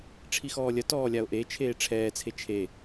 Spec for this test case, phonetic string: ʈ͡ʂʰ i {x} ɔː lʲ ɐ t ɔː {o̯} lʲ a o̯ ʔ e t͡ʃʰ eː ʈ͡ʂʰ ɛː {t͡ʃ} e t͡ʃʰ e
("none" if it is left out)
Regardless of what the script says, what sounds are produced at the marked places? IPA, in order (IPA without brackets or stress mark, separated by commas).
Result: x, none, t͡sʰ